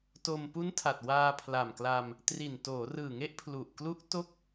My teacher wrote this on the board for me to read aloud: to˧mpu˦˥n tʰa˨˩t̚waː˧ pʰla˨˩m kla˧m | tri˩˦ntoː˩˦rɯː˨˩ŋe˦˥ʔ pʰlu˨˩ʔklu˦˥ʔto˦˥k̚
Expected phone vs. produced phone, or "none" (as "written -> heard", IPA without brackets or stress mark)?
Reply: i˩˦ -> i˨˩